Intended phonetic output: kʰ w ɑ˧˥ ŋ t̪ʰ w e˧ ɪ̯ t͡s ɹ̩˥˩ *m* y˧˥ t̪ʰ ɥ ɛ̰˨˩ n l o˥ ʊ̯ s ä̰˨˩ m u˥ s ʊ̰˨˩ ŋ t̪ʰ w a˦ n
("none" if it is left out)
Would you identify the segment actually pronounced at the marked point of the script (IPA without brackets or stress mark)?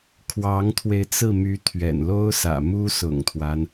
m